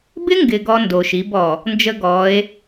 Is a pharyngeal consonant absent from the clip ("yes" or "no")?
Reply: yes